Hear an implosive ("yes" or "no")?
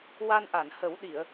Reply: yes